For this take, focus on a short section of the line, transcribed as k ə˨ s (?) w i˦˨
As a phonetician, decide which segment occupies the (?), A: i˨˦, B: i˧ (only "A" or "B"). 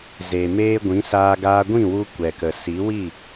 A